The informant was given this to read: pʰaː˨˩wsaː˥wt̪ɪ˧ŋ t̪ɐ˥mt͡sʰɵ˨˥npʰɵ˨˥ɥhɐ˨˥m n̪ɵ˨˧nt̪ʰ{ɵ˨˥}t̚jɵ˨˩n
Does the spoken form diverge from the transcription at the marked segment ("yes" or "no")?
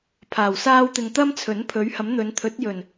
no